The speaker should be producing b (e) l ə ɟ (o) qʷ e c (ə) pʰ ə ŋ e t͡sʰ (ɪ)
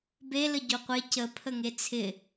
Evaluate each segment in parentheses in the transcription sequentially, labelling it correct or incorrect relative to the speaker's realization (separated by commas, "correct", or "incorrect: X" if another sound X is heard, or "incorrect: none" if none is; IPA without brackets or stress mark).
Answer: correct, correct, correct, correct